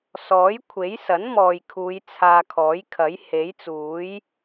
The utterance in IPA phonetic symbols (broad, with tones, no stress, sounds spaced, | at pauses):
s ɔː˨˥ j kʷʰ e˨˥ j s ɐ˨˥ n m ɔː˨ j kʰ uː˨˧ j t͡sʰ aː˧ kʰ ɔː˨˥ j kʰ ɐ˨˥ j h e˨˥ j t͡s uː˨˥ j